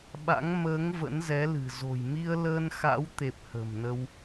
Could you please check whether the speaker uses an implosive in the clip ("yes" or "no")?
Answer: yes